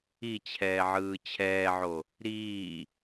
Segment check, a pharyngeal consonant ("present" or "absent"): present